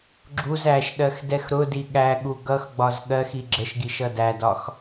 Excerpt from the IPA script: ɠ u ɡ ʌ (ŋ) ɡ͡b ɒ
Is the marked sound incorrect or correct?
incorrect